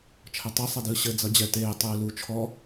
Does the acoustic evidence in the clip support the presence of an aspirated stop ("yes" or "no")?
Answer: yes